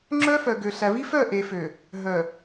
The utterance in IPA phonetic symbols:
ŋ͡ǁ œ˦ f œ˨ ɡ ø˨ ɬ æ˨ v i˦ f œ˦˨ ʔ e˨ f ø˨ | ɦ œ˨

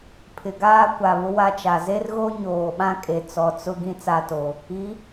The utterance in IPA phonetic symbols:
pʰ ɪ˨ ɡ aː˦ kʷ a˨ β ʊ˦ w a˦ t͡ʃ a˨ z e˦ r ɣ o˦ ɲ oː˨ ɓ ã˦ kʼ e˨ t͡s ɔ˨ t͡s ʊ˦ ɡ ĩ˦ t͡s a˦˨ t o˨ | i˨˦

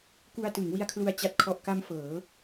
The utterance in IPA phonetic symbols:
k u˧ a̯ t ɯ˩˦ ŋ w i˧ a̯ kʰ l u˧ a̯ t͡ɕ a˨˩ t̚ kʰ ɔ˨˩ ʔ k a˧ m f ɤː˩˦

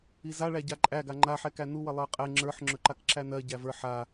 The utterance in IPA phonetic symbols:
i z a ɭ æ ɟ a ǃʼ æ ɡ a ŋ͡ǃ a ħ ɛ k æ n u w ə lˠ ə˞ qʼ ɛ ŋ͡ǁ ə˞ ħ ŋ͡ǁ ɵ ǃ a k ǁ æ n ɜ ɟ æ v ə˞ ħ a

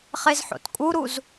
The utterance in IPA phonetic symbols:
χ e z ħ o̰ t kʼ u ɾ u z

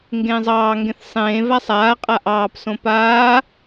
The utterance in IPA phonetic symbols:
ŋ ɡ ẽː zˤ ɑː ŋ ɡ ẽ θ sˤ ẽː v a sˤ aː qʼ a ʔ ɑː p s õ p aː

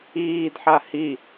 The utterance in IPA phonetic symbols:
iː d ħ a h i

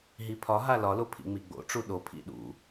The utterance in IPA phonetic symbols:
ɦ i pʰ ɒ ɦ a l ɒ l o pʰ ḭ ŋ͡m i ɡ͡b o̰ ʈ͡ʂ u ɗ o pʰ ḭ ɗ ṵ

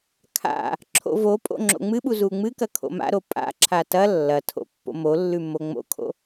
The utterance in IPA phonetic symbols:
kʰ a̰ | ǁʰ o̰ v o pʼ o̰ ŋ͡ǁ o̰ ŋ͡m ɨ ɓ u z u ŋ͡m ɨ k ɐ kʰ o̰ m a̰ ɾ o pʼ a̰ ǁʰ a t ɐ lː ɐ tʰ o̰ pː o̰ m o lː ʉ m o ŋ͡m o̰ kʰ o̰

